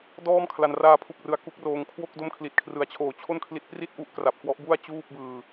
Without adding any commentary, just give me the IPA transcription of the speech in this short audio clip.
d ɔː˥˩ m kʰ l a˧ n r aː˧ pʰ u˨˩ k̚ r ɯ˩˦ a̯ k u˦˥ k̚ r oː˧ ŋ kʰ w o˥˩ k̚ d o˦˥ m kʰ l i˨˩ t̚ kʰ r ɯ˨˩ a̯ t͡ɕʰ oː˨˩ t͡ɕʰ o˥˩ n kʰ l i˦˥ t̚ p r i˥˩ t̚ ʔ u˦˥ ʔ k r a˨˩ p̚ k w ɔ˦˥ ʔ b u˥˩ a̯ t͡ɕ uː˥˩ p̚ b ɯː˧

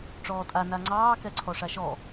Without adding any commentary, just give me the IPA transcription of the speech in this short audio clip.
ʈ͡ʂ ɔː tʼ a n a ŋ͡ǀ ɑː k ɛ ǀʰ ɔ ʂ a ʃ ɔ

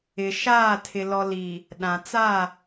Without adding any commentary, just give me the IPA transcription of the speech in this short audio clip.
ɪ˨ ʃ aː˦˨ tʰ ɪ˨ l ɔ˨ l i˨ | ɗ ã˨ t͡s a˦˨

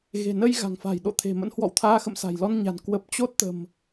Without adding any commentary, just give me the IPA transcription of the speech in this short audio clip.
ɣ e̤˨˩ n ə˧ j ɣ a̤˨˩ ŋ f a̤˨˩ j ɗ o̰˧˨ t̪ʰ e̤˨˩ m ə̰˧˥ n h w ɔ̰˧˨ w t̪ʰ aː˧ x ə̰˧˨ m s a̤˨˩ j l ɔ˧ n ɲ a̤˨˩ n k w ə˨˩ p̚ t͡ɕ o˦˥ t̚ t̪ ə̤˨˩ m

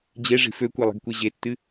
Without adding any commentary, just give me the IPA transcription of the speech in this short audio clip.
d͡ʑ e ʐ i̤ f ø kʷ e lˠ e̤ ɡ kʷ e ʑ e tː ɨ

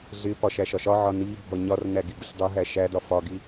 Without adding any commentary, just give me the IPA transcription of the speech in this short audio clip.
ɮ ɪ p ɒ ʃ æ ʃ ɒ ʃ ɒ ʕ ɒ n i bʱ ɔ ɲ ɒ r n æ ɡ i ɡ ʊ ɬ dˤ ʊ ɦ æ ʃ æ d ɒ f ɒ ɡ i

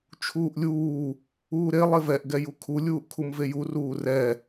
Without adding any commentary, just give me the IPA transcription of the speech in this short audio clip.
t͡ʃʰ uː ʔ lʲ uː | uː ɾ e lˠ e v ɛ ʔ ɡ ɛ j u kʰ u lʲ uː ʔ kʰ u m v e j u r uː r ɛ

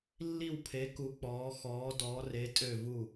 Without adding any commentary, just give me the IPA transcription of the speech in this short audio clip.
lː i˧˩ w pʰ e˩˧ k u˩˧ k͡p ɔː˩˧ x ɔː˩˧ d ɔː˩˧ r e˩˧ tʼ ø˧˩ v u˧˩

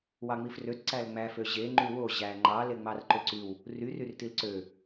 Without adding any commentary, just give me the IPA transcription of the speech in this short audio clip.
w ɑ ŋ͡m i f r ø t ǀ æ l ŋ͡m æ f ø ʑ e ŋ͡ǃ y w o ʑ æ ŋ͡ǃ ɑ l e ŋ͡m ɑ r ǃ ø ǀ y w | r y r y r t i l ǀ ø

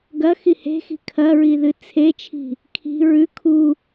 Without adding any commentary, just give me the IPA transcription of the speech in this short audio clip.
ɡ ɐ x i h e̤ x i̤ kʰ ɐ ɹ i ð ɨ t͡sʰ e t͡ʃʰ i̤ | kʰ i̤ ɹ ʉ kʰ u

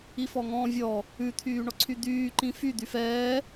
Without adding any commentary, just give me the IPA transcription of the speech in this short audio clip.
i f ɔ ŋ ɔ̃ː vʲ ɔ | ʉ t̪ʰ yː ɳ ɔ ǀʰ y d̪ yː ǃ ĩ f y d̪ y f ɛː

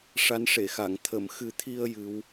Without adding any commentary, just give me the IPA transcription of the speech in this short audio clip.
ʂ a˧˥ n ʂ e˨˩˨ x a˨˩˨ ŋ t̪ʰ ə˨˩˨ m x ɨ˨˩˦ t̪ʰ i˧ ə̯ j ɨ˧˥ w

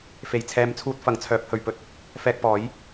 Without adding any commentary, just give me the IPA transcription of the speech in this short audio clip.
f e˨ j t͡sʰ ɛː˨˧ m t͡sʰ uː˧ t̚ f ɐ˨˥ ŋ t͡sʰ œː˨˥ p̚ h ɵ˨ ɥ p ɵ˥ t̚ | f ɛː˧ k̚ p ɔː˨˥ j

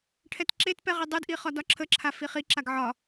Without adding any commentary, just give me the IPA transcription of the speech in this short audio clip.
ʈʰ ɛ t ǁ e t p ɛ ʁ i dˤ ɯ d ʔ i χ ɒ d ɒ ǁʰ ə ǁʰ a f i χ i ǁ a ɡ ʕ ɒ

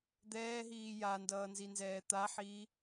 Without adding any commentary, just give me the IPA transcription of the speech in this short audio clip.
d̪ ɛː ɦ iː j a n d ʌː n z i n z ɛː t̪ a ħ iː

